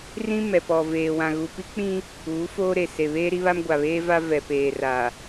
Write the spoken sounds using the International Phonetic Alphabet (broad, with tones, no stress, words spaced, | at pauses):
rĩ˦mɛ˨ pɔ˨veː˨ wã˨ɣu˨pi˦k͡pĩ˦ | uː˨˦foː˦ɾe˨ se˨βeː˦ɾi˦βa˦m ɡʷa˨βeː˦va˦ vɛ˨ peː˨ra˨